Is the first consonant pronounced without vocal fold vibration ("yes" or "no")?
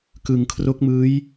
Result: yes